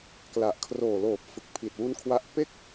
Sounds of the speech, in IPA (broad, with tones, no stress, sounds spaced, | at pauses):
k l a˨˩ ʔ kʰ r oː˨˩ l oː˨˩ p̚ f ɯ˨˩ k̚ pʰ i˨˩ t̚ w u˦˥ n kʰ w a˦˥ ʔ p e˥˩ k̚